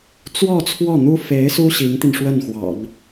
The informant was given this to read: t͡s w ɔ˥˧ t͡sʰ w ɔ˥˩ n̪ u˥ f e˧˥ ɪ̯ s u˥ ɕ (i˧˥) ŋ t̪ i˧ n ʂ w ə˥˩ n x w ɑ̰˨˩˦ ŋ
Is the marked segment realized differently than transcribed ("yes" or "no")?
no